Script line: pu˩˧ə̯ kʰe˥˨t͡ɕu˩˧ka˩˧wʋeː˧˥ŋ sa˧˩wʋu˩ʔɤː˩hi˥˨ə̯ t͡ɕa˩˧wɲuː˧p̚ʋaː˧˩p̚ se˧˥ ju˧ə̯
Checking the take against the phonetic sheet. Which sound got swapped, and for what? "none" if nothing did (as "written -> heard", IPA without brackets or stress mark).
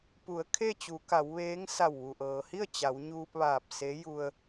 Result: none